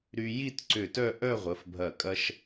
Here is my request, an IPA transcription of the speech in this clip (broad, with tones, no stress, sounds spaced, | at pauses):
ɾ y˧ j i˥˧ t ǀ ʏ˧˩ t œ˥˧ ʔ œ˥˧ ʁʷ ə˩˧ f bʱ ɐ˧˩ kʼ ɐ˧ ʃ